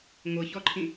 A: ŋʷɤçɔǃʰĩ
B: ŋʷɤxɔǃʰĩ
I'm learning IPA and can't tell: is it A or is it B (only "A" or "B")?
A